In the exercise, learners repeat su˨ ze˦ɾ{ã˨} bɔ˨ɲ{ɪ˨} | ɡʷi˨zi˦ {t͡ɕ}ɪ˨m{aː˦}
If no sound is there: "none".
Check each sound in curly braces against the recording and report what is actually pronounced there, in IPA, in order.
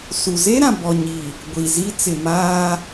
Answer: ã˨, i˨, t͡s, aː˦

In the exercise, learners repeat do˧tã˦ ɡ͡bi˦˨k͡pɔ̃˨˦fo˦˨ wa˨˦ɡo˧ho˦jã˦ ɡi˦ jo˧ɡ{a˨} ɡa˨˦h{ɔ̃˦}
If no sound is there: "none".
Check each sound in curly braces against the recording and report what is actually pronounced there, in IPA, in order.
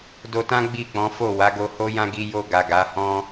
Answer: a˨, ɔ̃˦

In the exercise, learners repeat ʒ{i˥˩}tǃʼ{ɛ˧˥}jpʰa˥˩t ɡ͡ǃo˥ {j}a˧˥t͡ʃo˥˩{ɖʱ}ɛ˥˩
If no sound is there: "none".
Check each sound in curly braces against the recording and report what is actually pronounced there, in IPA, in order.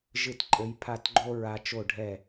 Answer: ɨ˥˩, ɘ˧˥, ɹ, ɖʱ

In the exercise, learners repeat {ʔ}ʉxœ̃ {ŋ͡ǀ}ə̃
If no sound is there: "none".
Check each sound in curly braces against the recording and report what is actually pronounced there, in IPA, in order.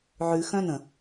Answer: ʕ, n

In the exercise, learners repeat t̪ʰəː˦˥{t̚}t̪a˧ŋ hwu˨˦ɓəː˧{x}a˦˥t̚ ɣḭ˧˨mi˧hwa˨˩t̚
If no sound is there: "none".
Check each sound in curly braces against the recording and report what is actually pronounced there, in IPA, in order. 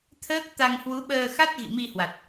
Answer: k̚, x

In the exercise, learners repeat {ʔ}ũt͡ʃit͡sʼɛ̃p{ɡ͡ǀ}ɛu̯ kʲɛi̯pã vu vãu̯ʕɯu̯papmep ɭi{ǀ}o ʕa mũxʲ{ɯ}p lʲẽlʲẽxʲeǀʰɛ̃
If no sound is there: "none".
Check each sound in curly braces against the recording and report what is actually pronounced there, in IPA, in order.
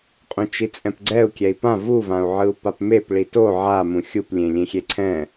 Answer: qʼ, ɡ͡ǀ, t, u

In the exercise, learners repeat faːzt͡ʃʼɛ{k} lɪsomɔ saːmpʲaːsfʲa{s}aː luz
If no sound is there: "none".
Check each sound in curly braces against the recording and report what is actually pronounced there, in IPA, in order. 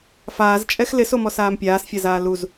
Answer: x, z

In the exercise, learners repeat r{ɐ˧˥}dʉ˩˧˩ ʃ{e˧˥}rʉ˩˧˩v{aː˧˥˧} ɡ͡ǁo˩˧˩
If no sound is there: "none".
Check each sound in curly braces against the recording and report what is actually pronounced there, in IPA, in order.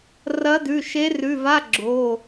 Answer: ɐ˧˥, e˧˥, a˧˥˧

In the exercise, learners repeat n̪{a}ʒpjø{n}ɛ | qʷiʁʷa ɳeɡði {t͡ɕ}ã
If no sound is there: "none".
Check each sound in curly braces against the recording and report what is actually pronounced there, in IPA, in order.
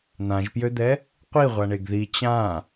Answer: ã, d̪, t͡ɕ

